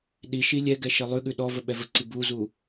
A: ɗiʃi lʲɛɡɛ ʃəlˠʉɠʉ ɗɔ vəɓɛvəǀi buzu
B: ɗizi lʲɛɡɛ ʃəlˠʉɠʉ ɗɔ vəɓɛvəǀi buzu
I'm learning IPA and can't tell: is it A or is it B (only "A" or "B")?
A